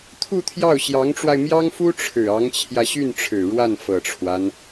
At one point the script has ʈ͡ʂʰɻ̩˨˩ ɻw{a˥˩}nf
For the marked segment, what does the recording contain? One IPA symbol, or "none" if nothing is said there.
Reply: a˥˩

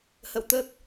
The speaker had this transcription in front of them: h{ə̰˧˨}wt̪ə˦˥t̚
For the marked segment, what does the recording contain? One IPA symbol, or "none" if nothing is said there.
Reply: ə̰˧˨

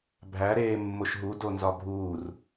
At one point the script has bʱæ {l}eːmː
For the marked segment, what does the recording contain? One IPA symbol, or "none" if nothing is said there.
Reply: ɾ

